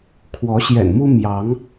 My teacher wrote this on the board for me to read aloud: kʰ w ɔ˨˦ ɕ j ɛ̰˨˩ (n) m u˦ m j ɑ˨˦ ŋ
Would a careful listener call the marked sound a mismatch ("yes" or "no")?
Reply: no